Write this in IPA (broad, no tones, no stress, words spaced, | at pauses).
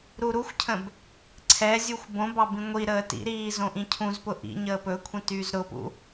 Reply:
ɾuɾuxʷcʰə̃b | ǀʰɛzʲuxʷ bõbɑ bĩŋʷiɾəː tḭɾiː zõʔĩcʰũzpʊ ʔḭ ɲəːpɵkʷʰĩ tyːzɾʊpṵ